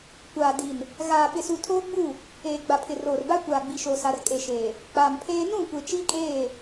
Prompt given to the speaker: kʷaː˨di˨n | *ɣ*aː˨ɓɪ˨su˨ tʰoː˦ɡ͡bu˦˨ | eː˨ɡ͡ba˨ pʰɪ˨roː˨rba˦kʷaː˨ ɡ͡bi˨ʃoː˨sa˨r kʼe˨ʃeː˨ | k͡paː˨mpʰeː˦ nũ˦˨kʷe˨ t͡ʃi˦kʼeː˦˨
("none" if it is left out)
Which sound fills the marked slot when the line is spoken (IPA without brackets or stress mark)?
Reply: ɣ